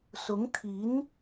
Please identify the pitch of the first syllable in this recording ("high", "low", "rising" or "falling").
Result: rising